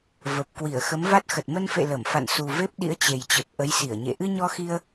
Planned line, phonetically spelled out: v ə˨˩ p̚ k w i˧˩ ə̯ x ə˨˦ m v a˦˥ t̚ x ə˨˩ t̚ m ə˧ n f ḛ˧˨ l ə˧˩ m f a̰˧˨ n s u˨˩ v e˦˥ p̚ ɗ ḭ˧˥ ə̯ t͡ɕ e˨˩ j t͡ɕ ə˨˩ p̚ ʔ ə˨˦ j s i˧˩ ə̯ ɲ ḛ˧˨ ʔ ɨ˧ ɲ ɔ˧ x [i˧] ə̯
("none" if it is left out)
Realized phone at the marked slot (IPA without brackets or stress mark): i˧